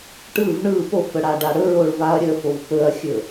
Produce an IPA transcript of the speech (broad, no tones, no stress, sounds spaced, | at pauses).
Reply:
ʈ ɯ v ɳ ɯ p o f ə ɽ a ɖ a ɽ ɵ ɹ o ɭ v a ɐ̯ ɾʲ ə f o v p ɵ ɐ̯ xʲ ɵ